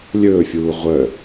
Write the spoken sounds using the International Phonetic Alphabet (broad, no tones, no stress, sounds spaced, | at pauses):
lʲ ɵː fʲ uː ʁʷ œ